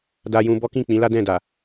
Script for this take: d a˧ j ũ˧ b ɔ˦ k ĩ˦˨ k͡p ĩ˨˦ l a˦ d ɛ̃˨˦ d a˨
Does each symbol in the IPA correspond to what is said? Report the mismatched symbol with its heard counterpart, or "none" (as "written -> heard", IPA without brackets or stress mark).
ɛ̃˨˦ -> ɛ̃˦˨